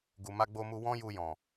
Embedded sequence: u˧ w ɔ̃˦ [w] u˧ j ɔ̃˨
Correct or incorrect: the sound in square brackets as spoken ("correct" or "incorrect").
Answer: incorrect